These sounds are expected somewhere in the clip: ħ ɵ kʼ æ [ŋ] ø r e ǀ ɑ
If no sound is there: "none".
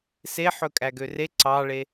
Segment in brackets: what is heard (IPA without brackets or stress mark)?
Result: ɡ